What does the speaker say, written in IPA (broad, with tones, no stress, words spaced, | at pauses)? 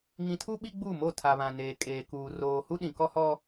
ŋĩ˨tʰu˦ ɓi˦ɡ͡bu˦˨mo˦˨ tʰa˨βã˨neː˨ kʼeː˨kuː˨ roː˨ hu˦ɗĩ˨kɔ˦hɔ˦